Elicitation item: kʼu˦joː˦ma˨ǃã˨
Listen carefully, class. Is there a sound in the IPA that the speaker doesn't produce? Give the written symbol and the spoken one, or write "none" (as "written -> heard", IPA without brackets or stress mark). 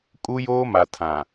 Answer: ǃ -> tʰ